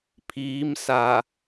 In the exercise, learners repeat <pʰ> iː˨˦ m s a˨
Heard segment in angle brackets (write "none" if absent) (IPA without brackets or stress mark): pʰ